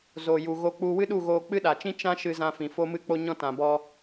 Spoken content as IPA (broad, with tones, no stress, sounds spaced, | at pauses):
z oː˨ j u˨ ɣ o˧ k͡p u˧ w ɨ˦ ɗ u˦˨ ɣ oː˧ k͡p ɨ˦ ɗ a˨ t͡ʃ ĩ˦ t͡ʃ ã˦ ʃ ɨ˧ z ã˧ f ĩ˨ f o˦ m ɨ˦ k͡p o˦ ɲ ɔ̃˦ t ã˨ b ɔ˦